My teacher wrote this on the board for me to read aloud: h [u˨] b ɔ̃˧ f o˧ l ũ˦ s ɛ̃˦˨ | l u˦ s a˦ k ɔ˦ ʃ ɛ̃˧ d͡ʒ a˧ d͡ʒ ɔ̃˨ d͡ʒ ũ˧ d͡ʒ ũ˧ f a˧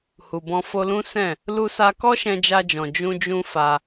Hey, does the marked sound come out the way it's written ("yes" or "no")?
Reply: yes